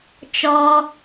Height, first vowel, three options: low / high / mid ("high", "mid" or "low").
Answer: mid